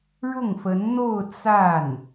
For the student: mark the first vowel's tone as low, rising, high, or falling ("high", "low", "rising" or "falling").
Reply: falling